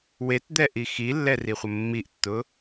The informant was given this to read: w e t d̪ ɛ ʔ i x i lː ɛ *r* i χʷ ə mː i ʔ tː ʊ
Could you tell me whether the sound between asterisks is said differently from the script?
no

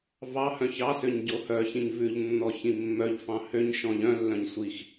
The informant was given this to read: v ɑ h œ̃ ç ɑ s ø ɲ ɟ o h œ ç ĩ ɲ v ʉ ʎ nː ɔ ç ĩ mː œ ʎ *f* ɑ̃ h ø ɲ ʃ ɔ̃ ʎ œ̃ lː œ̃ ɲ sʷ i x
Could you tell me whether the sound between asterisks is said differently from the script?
no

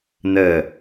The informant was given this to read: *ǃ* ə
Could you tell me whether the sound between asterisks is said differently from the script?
yes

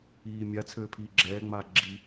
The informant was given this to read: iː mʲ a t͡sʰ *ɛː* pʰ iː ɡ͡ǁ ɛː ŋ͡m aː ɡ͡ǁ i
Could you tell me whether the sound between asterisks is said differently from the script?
yes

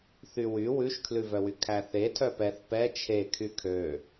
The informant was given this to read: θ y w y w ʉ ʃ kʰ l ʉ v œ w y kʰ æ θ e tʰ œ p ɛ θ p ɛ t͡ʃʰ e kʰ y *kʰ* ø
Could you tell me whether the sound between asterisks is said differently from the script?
no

